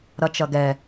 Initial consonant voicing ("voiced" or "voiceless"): voiced